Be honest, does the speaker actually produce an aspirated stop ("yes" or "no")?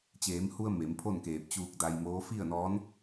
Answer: yes